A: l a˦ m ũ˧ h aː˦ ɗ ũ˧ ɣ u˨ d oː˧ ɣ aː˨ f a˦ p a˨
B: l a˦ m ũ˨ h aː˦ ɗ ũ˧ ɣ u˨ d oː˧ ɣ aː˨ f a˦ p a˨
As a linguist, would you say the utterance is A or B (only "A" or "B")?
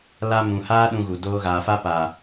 B